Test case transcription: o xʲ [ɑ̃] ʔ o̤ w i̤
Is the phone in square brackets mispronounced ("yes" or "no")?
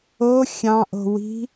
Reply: no